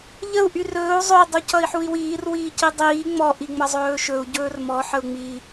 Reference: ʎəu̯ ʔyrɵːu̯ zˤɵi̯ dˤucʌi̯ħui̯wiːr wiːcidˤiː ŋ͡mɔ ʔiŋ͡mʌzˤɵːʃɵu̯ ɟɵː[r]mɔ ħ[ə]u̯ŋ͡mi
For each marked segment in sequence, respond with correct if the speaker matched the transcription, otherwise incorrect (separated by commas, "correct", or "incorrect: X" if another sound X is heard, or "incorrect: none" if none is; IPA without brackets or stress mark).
correct, correct